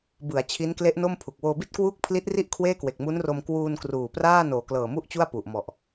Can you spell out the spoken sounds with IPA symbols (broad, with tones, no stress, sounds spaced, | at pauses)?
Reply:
b ɯ˩˦ a̯ t͡ɕʰ i˦˥ n k l e˦˥ ʔ n o˥˩ m pʰ u˨˩ k̚ w oː˧ b i˥˩ t̚ k w uː˥˩ k̚ pʰ l i˦˥ t̚ r i˥˩ ʔ kʰ w eː˥˩ k w e˨˩ k̚ m u˦˥ n r o˧ m k w uː˧ n k r uː˨˩ p r aː˥˩ n oː˨˩ k l ɤː˨˩ m u˥˩ ʔ t͡ɕ u˥˩ a̯ p u˨˩ ʔ m ɔ˨˩ ʔ